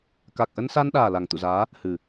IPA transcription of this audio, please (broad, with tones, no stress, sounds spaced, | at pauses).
k a˨˩ k̚ ʔ ə˧ n s a˧ n ɗ aː˨˩ l a˨˩ ŋ t̪ ṵ˧˨ z aː˨˦ | h ɨ˨˩